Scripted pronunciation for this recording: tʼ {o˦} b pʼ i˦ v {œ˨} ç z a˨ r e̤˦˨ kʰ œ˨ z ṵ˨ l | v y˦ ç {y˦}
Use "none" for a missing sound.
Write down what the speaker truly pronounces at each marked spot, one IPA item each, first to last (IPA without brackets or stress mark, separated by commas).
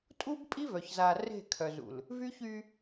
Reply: u˦, œ˨, y˦